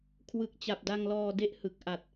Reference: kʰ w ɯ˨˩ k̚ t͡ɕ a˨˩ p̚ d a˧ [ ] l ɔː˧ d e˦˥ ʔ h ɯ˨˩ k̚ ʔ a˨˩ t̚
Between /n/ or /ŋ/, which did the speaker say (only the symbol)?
ŋ